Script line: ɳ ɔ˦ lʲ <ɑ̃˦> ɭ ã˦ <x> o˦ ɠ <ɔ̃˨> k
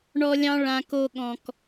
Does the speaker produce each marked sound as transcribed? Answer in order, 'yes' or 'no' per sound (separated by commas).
yes, no, yes